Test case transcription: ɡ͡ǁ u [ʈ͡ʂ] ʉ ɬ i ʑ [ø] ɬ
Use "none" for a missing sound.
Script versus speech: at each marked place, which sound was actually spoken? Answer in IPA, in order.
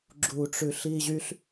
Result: ʈ͡ʂ, y

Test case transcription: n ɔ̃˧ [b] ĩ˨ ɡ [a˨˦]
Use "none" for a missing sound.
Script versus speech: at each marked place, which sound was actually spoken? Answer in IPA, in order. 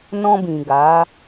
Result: b, a˨˦

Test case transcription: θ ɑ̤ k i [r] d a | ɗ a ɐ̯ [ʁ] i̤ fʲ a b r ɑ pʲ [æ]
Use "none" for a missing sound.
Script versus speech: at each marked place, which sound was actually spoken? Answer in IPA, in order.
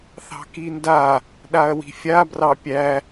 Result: n, w, æ

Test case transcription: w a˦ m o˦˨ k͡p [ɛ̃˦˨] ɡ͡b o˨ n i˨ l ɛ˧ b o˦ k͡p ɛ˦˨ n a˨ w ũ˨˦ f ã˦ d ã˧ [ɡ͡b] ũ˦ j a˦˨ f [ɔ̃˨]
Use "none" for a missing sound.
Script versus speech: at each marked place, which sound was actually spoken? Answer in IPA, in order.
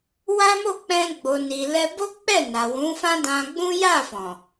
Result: ɛ̃˧, ɡ͡b, ɔ̃˨

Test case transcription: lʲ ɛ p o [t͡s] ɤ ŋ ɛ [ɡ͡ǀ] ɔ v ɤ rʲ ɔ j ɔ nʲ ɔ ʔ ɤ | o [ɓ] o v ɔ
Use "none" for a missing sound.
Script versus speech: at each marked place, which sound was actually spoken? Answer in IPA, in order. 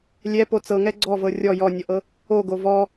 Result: t͡s, ɡ͡ǀ, ɡ

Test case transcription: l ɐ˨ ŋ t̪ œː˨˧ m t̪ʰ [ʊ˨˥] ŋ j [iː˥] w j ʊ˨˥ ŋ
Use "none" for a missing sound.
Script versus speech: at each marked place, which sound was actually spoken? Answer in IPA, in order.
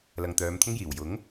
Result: ʊ˥, iː˨˩

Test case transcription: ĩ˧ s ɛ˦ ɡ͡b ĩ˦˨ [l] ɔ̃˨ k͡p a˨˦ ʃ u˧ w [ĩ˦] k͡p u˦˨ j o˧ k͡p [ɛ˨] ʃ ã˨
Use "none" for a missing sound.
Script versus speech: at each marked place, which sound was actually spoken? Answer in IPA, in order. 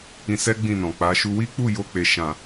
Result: n, i˦, e˨

